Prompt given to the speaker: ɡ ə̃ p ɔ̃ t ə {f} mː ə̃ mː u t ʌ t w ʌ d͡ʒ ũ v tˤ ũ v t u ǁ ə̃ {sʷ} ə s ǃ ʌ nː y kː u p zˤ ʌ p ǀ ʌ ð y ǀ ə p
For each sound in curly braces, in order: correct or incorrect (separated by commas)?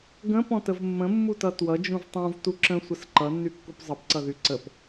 incorrect, correct